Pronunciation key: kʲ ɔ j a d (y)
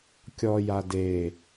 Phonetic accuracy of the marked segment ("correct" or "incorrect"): incorrect